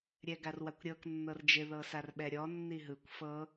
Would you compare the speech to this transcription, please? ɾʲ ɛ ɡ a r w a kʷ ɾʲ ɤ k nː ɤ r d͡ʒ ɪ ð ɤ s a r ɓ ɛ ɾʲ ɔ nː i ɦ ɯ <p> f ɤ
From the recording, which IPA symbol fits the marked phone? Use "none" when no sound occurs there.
kʷ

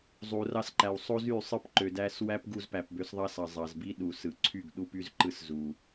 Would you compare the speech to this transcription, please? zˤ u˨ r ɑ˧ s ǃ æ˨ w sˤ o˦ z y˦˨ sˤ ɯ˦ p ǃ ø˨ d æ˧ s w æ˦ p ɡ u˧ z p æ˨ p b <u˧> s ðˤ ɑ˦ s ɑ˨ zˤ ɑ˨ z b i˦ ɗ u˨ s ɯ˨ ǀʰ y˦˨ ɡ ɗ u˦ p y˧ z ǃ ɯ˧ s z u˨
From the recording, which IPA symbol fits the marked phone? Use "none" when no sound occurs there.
ø˧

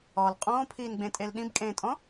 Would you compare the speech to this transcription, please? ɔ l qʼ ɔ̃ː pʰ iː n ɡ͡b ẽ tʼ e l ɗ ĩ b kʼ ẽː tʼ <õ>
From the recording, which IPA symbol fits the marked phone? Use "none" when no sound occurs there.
ɔ̃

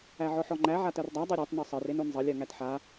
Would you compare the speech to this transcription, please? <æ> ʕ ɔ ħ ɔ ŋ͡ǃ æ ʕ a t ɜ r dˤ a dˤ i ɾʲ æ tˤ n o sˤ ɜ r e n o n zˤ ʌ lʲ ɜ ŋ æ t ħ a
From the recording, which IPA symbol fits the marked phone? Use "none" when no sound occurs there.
æ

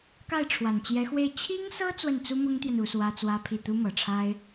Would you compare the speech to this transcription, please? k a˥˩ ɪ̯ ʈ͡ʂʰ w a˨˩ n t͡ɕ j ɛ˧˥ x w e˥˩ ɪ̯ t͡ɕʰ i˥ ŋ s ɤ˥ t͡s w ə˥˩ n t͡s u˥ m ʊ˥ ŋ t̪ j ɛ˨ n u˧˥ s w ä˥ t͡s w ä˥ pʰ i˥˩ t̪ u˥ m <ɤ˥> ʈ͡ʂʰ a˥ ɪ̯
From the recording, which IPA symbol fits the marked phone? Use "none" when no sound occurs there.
ɤ˨˩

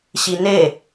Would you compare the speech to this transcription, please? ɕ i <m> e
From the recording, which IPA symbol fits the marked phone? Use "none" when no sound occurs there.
n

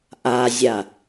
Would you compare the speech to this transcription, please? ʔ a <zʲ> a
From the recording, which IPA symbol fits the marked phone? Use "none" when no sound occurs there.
zʲ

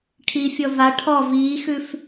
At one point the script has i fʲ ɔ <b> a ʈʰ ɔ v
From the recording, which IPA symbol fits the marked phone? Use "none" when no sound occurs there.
v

